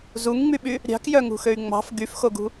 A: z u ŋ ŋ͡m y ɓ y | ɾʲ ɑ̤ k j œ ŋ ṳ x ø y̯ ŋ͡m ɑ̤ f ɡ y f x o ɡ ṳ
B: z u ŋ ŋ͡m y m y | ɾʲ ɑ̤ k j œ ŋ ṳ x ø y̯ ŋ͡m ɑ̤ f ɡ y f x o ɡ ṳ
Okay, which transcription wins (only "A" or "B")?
A